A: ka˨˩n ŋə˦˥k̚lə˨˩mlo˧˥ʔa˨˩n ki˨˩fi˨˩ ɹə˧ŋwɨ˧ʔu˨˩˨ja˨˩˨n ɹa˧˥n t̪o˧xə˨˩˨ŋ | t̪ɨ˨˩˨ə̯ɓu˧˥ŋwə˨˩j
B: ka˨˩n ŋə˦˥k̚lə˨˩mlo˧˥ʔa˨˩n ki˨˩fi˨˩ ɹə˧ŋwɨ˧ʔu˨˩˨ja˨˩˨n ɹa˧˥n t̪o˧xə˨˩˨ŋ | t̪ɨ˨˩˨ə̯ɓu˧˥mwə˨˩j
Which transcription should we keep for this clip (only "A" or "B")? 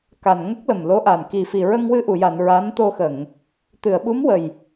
B